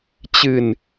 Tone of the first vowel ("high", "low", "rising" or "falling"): low